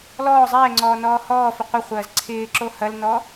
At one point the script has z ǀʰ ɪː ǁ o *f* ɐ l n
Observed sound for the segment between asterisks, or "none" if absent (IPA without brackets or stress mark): h